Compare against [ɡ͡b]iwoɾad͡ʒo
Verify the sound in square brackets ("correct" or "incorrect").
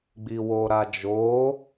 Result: correct